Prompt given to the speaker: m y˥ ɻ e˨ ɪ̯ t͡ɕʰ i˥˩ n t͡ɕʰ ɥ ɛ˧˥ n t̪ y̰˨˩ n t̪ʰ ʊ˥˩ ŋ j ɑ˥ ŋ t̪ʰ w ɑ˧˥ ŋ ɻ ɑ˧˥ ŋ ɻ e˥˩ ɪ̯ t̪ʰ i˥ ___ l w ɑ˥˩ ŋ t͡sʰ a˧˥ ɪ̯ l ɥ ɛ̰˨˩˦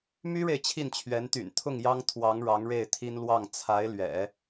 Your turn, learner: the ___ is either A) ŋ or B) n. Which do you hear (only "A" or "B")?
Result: B